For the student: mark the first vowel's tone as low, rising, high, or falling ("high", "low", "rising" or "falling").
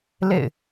falling